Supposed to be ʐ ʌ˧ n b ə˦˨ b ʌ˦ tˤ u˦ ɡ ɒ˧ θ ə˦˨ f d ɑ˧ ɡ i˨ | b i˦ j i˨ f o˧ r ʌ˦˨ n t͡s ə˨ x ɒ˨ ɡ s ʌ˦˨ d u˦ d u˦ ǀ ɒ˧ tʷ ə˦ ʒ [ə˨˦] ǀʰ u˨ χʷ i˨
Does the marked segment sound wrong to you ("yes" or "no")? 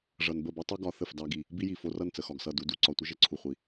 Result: no